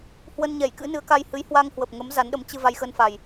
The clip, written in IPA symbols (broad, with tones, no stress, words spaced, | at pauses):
hwə˧nɲɛ˧˩j kɨ̰˧˥nɨ˨˦ə̯ka˧jhɨ˨˦j hwa˧ŋhwə˨˩p̚ŋə˨˦m za˨˦nɗə˨˦m t͡ɕɨ˧ va˧jxə˧nfa˨˩j